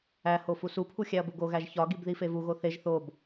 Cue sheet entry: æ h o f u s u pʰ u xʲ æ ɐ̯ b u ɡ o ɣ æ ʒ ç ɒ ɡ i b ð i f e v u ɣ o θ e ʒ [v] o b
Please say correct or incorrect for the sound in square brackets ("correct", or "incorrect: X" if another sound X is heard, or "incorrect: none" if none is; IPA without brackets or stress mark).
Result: incorrect: θ